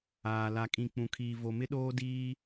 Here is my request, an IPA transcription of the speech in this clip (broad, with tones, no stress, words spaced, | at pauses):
aː˨ la˨kʼĩ˨ k͡pũ˨kʰiː˨ vo˨mɪ˦ɗoː˦ diː˦